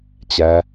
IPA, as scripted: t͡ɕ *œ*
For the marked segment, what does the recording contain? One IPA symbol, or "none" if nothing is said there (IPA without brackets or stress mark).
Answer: æ